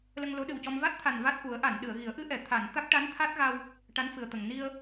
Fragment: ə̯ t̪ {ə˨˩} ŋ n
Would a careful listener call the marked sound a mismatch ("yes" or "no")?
no